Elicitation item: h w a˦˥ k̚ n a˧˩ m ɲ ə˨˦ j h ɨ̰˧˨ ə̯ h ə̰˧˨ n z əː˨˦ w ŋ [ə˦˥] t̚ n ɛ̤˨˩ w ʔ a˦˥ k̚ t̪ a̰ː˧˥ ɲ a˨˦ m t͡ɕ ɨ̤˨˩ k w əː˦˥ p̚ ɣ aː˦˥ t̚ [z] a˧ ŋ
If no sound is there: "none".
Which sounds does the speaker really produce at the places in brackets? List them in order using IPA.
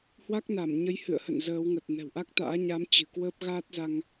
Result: ə˨˩, z

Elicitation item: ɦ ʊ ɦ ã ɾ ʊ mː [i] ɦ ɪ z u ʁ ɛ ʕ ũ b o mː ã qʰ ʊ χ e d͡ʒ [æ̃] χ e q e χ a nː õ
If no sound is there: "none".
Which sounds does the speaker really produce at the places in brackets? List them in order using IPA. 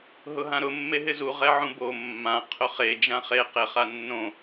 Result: e, ã

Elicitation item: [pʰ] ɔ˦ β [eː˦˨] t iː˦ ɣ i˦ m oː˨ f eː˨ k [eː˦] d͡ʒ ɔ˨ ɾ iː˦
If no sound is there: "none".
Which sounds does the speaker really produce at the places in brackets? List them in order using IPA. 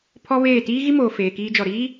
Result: pʰ, eː˦˨, iː˦

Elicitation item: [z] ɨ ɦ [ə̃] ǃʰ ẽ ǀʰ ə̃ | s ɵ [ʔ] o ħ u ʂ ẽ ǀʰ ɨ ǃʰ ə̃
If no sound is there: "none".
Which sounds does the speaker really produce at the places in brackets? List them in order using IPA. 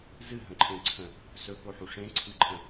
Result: z, ə̃, k

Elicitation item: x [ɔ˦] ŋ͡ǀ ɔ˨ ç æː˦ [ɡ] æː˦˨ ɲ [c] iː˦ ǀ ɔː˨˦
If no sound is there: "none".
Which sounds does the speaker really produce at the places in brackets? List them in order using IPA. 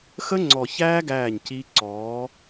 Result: ə˦, ɡ, c

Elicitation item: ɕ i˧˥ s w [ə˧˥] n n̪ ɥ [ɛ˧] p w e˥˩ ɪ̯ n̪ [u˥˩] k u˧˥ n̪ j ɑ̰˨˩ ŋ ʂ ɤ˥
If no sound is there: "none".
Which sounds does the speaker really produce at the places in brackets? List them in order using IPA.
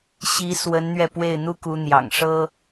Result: ə˧˥, ɛ˧, u˥

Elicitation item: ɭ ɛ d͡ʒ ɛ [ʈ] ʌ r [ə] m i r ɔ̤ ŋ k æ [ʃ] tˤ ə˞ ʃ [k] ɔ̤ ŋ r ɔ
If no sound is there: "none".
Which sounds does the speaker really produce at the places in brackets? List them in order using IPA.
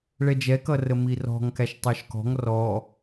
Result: k, ə, ʃ, k

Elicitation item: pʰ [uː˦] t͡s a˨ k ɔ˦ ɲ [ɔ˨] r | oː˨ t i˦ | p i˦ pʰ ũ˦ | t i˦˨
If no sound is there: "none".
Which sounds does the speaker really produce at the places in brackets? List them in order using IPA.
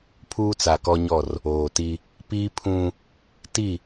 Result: uː˦, ɔ˦˨

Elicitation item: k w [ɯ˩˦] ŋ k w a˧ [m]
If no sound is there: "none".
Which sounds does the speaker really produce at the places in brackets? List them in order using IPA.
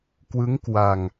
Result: ɯ˦˥, ŋ

